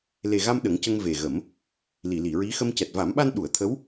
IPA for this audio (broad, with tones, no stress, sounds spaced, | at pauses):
l e˨˩ ɣ a˧ m ɗ ə˨˩˦ ŋ c ə˧ ŋ v e˨˩ ɣ ə˨˩˦ m | l i˨˩˨ l i˨˩˨ ɹ i˧˥ x ə˧ m c ɛ˨˩ t̚ v a˨˩˦ m ɓ a˧ n ɗ u˨˩˨ ə̯ t̪ʰ ə˧˥ w